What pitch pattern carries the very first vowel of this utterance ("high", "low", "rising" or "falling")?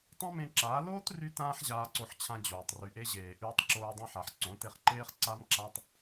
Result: high